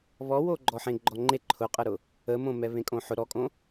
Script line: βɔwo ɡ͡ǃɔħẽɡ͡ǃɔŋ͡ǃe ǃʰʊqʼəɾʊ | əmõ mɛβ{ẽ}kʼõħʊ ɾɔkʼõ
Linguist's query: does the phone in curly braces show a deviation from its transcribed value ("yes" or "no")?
no